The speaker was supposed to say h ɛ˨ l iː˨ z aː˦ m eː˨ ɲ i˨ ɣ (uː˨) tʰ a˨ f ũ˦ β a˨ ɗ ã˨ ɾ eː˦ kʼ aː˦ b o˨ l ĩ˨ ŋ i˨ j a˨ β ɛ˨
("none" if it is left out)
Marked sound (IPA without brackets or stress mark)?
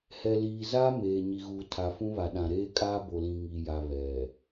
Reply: uː˨